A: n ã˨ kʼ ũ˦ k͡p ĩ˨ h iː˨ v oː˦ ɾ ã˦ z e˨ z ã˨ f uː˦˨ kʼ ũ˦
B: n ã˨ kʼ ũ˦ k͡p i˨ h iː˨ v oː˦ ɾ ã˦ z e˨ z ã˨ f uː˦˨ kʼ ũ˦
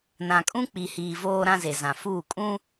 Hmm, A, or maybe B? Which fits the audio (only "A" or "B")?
B